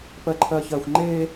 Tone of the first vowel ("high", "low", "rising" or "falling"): high